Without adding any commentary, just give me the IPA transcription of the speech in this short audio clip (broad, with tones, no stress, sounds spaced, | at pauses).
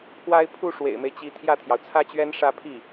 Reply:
pʰ w a˥ ɪ̯ pʰ u˥˩ ʂ w ḛ˨˩ ɪ̯ m e˦ ɪ̯ t͡ɕ i˧˥ t̪ʰ j ä˥˩ t̪ʰ j ɑ˩ ʊ̯ t͡sʰ ä˥ t͡ɕ ɥ ɛ˥ n ʂ ä˥˧ pʰ i˥˩